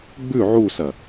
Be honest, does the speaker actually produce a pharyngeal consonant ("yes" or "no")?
yes